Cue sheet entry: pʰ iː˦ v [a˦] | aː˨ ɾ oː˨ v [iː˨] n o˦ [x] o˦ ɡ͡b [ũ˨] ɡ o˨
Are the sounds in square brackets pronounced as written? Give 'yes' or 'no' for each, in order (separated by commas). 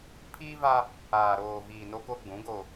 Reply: yes, yes, no, no